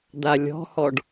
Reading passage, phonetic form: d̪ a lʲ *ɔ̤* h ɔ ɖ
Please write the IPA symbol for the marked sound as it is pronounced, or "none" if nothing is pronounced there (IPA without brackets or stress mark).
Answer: ɔ̤